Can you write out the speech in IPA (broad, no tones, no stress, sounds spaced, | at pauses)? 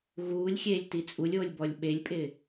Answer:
ɣ uː lʲ xʲ eː lʲ t i t͡sʼ u lʲ oː lʲ b ɔ lʲ ɓ e lʲ pʼ ɪː